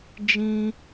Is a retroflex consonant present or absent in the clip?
absent